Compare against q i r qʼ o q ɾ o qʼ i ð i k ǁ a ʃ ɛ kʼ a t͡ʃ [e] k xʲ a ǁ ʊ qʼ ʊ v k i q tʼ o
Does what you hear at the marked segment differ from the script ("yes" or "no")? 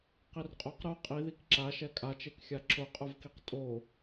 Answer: no